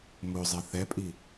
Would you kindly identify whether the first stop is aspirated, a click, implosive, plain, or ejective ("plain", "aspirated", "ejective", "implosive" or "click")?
ejective